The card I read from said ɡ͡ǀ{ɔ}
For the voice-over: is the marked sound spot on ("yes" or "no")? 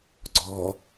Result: yes